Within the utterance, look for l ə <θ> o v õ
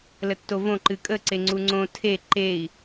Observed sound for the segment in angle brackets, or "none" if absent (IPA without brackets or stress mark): tː